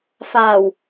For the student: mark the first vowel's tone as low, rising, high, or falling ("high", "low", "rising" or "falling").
low